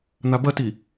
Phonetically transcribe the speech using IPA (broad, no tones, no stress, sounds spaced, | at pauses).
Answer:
n̪ a b ɐ t i